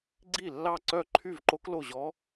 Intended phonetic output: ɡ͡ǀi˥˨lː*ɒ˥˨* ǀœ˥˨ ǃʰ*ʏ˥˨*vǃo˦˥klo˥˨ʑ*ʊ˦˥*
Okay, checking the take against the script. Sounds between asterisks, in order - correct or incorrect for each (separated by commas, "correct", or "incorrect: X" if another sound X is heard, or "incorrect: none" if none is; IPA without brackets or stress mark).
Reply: incorrect: ɑ˥˨, incorrect: y˥˨, incorrect: ɔ˦˥